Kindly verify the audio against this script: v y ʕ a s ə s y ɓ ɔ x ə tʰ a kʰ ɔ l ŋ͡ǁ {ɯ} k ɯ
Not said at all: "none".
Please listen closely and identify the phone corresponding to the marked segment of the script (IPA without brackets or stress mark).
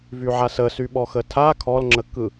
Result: ə